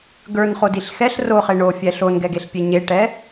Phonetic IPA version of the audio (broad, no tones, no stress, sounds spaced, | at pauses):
ɡ ə˞ n χ o d i ɬ x ɛ ɬ r o χ e ɳ o fʲ ɛ ɬ o n ɡ ɛ ɡ e ɬ pʲ e ɲ e ʈ ɛ